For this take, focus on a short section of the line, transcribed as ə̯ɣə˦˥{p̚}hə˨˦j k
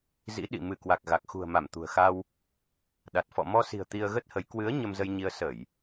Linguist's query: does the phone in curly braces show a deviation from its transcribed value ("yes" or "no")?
yes